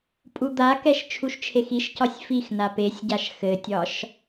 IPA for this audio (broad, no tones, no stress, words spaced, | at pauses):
pʼud̪akɛʃ t͡ʃʰuʃt͡ʃʰexiʃcɒsʲ fixna pesʲɟaʃ xɘtʲɒʃ